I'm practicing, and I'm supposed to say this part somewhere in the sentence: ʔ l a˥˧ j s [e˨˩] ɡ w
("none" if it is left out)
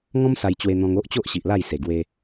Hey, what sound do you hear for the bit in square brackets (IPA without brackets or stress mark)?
e˨˩